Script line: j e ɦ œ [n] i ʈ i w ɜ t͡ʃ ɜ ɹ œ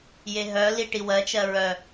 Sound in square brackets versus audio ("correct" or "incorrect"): incorrect